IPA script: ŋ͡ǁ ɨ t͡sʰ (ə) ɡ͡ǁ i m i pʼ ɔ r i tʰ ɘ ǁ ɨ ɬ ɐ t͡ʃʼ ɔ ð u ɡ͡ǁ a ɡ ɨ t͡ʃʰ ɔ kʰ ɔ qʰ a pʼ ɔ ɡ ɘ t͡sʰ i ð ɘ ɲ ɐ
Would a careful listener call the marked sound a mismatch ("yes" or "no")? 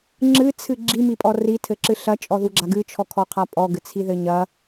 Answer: yes